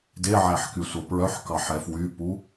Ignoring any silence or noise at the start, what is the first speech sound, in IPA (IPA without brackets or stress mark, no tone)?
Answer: d